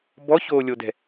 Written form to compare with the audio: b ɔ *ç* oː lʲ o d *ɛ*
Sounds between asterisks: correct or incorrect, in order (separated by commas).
correct, incorrect